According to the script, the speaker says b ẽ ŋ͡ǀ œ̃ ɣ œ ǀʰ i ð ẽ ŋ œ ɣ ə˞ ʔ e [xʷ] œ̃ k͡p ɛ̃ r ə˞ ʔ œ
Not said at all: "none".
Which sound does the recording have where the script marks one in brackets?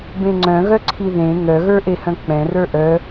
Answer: h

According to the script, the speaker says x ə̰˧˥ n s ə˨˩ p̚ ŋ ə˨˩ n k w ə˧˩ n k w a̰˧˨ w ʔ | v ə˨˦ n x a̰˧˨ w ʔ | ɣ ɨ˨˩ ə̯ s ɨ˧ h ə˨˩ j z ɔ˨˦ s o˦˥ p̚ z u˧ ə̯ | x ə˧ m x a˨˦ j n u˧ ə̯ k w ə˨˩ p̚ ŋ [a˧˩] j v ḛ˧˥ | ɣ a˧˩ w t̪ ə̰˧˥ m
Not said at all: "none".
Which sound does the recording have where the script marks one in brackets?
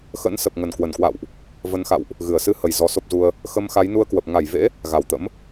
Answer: a˧˩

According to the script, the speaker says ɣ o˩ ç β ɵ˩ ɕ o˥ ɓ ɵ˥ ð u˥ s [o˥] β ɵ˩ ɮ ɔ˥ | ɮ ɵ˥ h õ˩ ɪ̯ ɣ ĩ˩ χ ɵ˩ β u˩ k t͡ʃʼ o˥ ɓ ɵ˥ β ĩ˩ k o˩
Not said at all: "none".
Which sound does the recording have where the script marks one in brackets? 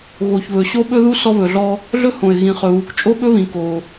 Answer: ɔ˥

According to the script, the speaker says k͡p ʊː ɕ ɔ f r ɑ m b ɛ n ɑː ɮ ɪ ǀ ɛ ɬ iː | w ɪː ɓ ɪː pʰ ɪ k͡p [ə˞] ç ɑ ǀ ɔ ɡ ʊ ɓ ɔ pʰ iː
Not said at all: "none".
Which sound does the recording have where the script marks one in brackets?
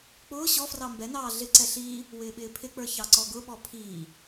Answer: ə˞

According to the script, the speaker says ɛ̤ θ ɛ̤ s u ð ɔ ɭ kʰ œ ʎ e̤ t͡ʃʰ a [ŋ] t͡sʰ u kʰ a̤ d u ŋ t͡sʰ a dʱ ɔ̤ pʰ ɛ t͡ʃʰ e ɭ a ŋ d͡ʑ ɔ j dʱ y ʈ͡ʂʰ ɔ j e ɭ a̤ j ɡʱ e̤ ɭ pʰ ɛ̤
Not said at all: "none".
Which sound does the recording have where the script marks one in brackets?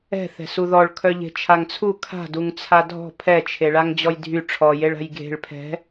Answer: ŋ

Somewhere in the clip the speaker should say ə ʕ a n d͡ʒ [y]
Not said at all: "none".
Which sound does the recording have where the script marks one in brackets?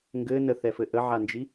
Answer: i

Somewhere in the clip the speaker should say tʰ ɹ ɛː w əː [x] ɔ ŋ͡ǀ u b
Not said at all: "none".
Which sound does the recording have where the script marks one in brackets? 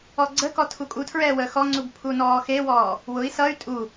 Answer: x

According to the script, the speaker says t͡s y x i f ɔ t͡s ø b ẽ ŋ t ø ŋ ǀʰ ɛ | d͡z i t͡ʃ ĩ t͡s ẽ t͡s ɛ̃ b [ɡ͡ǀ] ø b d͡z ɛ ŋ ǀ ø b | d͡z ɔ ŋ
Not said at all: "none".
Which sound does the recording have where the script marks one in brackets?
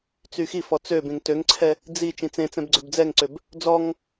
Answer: ɡ͡ǀ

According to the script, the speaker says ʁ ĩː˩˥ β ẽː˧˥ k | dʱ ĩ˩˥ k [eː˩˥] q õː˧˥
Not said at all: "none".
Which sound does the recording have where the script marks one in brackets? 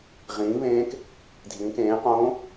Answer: ẽː˩˥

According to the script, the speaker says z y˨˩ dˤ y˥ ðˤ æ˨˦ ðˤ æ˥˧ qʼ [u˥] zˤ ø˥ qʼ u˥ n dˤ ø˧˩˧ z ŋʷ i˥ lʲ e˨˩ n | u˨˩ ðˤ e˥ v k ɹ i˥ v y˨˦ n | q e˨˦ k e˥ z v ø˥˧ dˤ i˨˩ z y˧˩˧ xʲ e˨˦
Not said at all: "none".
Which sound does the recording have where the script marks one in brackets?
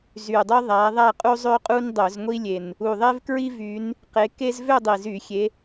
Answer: u˥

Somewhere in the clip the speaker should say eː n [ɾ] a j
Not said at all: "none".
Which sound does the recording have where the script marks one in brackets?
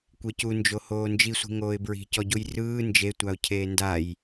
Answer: d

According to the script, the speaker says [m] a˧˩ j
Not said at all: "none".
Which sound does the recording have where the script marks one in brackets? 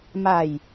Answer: m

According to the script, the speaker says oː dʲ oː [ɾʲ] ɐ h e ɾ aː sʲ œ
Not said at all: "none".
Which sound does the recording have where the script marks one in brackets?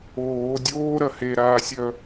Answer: ɾ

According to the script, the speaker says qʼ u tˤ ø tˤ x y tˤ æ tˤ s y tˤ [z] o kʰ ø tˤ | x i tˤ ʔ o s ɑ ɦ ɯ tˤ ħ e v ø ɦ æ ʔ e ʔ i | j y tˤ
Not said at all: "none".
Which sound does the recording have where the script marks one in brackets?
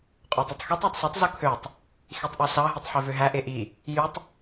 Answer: z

